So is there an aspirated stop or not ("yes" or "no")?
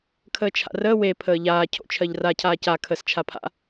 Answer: yes